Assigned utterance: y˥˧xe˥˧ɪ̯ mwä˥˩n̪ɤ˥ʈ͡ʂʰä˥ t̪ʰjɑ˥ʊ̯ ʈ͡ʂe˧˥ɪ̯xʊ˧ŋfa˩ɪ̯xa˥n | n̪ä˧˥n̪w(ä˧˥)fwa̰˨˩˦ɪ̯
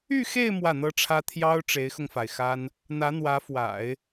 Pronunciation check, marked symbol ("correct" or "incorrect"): correct